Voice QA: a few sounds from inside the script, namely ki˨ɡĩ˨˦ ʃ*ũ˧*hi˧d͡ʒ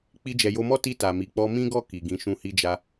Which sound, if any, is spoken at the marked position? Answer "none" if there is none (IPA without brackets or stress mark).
ũ˧